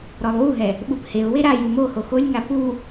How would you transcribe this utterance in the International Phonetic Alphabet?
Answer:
ɾ ɔ lˠ w u ɦ ɛ | ɓ u p h e ʊ̯ w e ɾ a j u m o h o x o lʲ ŋ a p u

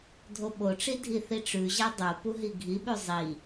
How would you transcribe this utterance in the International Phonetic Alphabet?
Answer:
dʱ o ɓ o ʈ͡ʂ i dʱ i θ i ʈ͡ʂ ʉ ʑ a dˤ o p u ɦ i ɡʱ i ɓ ʉ zˤ i

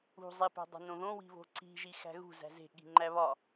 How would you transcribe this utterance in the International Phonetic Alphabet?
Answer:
ṳ zˤ e p æ̤ dˤ o̤ n õ ð õ w i̤ β o̤ ǀ i̤ ʒ i x æ̤ ɣ ṳ z æ̤ z e̤ ɠ i̤ ŋ͡ǃ æ β ɒ

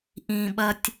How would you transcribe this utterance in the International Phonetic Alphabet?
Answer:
ʔ ĩ˩ ɓ ɐ˨ tʲ

